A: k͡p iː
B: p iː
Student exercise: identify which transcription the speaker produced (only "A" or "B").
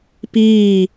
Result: B